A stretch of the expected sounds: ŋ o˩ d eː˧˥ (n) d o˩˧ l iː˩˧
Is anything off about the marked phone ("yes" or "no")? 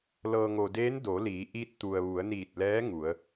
no